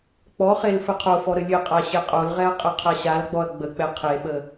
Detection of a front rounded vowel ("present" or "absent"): absent